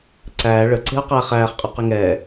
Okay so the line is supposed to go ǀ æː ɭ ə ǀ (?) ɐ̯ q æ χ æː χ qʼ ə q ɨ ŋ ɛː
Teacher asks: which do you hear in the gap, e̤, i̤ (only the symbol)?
e̤